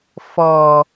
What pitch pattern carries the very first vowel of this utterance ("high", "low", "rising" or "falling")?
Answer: low